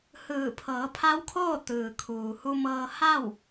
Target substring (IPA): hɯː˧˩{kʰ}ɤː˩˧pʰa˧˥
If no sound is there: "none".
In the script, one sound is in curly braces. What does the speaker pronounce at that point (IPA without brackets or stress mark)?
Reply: pʰ